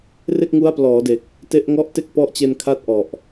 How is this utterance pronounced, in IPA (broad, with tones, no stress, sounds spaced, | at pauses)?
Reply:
r e˥˩ k̚ ŋ u˦˥ a̯ p l ɔː˩˦ d e˨˩ k̚ | t e˦˥ ʔ ŋ ɔ˥˩ ʔ t e˥˩ k̚ p ɔ˦˥ ʔ t͡ɕ e˧ n kʰ a˦˥ t̚ ʔ ɔ˨˩ ʔ